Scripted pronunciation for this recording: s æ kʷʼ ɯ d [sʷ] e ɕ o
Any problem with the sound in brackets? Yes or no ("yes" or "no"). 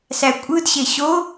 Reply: yes